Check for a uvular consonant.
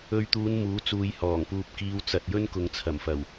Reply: absent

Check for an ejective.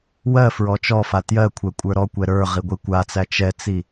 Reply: present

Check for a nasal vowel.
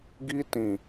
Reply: present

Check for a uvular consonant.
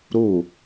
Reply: absent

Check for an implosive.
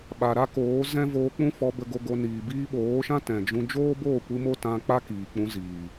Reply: present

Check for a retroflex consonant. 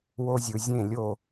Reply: absent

